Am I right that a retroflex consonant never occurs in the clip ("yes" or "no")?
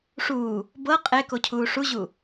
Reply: no